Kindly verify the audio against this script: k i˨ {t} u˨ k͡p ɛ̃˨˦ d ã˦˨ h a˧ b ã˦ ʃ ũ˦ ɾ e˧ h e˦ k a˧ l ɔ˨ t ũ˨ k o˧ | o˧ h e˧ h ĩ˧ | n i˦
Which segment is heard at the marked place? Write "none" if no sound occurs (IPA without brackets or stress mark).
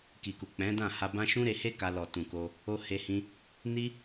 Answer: k